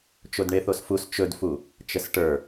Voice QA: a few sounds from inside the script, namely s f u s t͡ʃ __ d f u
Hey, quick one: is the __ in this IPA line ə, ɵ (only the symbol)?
ɵ